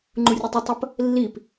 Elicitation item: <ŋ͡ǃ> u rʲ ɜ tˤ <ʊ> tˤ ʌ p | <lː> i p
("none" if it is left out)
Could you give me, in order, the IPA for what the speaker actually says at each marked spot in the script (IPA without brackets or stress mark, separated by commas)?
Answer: ŋ͡ǃ, ʊ, lː